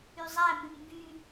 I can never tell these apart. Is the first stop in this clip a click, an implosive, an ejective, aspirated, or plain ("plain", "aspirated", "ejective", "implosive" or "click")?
plain